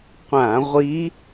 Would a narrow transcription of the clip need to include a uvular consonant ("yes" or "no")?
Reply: yes